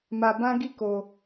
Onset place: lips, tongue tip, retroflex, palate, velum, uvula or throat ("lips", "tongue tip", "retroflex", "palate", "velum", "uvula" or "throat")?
lips